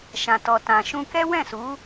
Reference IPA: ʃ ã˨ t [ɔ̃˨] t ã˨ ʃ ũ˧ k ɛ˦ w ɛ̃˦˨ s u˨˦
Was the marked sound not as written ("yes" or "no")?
yes